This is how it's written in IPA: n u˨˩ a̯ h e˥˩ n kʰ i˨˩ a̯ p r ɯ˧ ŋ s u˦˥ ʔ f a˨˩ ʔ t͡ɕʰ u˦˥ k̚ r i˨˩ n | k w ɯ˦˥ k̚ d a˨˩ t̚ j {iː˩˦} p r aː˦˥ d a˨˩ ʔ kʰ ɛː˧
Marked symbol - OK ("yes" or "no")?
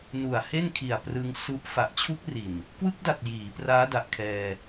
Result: yes